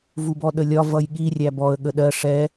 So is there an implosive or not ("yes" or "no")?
yes